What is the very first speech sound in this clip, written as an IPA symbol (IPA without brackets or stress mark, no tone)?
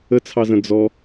ə